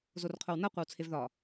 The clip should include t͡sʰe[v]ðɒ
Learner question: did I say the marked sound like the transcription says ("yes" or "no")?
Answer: yes